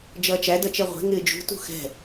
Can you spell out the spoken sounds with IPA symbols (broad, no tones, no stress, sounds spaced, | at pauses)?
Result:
d͡ʒ ʌː t͡ʃ æ d ʌ t͡ʃ ɛ ʁʷ ɛ̤ ŋ ɪː d͡ʒ ṳ t ṳ x ɛ̤